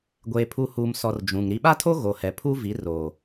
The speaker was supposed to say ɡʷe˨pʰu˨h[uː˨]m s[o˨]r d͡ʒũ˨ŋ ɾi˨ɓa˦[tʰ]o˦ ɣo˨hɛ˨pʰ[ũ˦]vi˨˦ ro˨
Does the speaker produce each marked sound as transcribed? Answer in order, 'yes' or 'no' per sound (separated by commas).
yes, no, yes, no